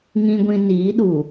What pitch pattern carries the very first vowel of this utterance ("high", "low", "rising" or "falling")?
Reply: low